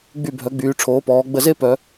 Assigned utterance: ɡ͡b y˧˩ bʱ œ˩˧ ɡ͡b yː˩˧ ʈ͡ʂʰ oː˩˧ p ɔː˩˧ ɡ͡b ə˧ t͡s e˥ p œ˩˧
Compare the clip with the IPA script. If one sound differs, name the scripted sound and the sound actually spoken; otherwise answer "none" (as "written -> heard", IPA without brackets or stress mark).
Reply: t͡s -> z